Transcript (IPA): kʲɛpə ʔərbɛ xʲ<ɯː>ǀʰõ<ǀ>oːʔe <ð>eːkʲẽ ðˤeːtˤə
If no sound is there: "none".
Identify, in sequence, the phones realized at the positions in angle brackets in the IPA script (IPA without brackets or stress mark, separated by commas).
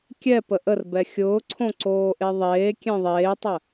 ʊː, ǀ, ðˤ